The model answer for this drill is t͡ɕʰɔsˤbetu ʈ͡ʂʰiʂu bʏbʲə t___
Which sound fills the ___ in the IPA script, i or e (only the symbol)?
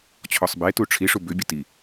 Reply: i